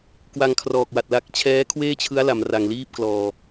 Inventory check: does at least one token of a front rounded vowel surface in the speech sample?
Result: no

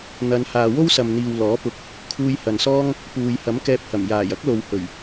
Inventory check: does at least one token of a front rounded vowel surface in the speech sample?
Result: no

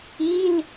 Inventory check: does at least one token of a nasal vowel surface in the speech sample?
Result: no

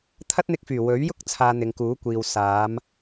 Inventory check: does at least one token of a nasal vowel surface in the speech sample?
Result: no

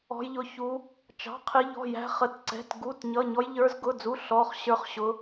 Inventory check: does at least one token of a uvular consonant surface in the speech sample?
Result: yes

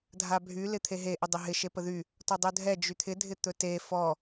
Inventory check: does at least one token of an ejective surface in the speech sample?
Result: no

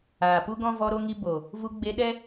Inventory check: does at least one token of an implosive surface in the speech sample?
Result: yes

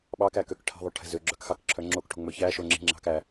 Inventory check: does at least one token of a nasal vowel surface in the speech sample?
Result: no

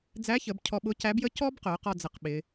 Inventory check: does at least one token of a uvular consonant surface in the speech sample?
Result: yes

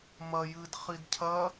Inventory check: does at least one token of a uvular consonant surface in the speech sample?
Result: yes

